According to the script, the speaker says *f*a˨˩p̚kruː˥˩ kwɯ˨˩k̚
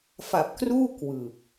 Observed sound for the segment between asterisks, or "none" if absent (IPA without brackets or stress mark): f